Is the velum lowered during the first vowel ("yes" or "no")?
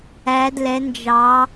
no